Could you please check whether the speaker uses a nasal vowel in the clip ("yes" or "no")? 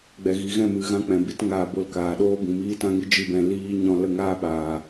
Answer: yes